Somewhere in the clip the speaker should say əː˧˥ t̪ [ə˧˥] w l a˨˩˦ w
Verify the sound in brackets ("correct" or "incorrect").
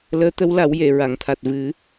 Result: correct